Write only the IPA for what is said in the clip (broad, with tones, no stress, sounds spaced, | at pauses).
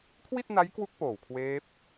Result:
kʰ w i˥˩ t̚ n a˦˥ j k w u˦˥ k̚ p oː˨˩ w kʰ w eː˦˥ p̚